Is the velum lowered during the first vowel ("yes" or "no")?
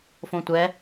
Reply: yes